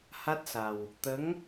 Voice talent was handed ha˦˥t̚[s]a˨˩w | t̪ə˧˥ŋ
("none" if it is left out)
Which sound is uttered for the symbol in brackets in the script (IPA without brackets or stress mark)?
s